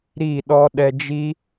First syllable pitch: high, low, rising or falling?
falling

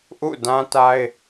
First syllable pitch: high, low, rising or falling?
falling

